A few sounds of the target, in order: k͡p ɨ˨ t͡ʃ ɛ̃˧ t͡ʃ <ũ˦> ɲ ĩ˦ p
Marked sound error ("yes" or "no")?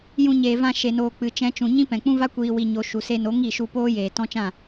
yes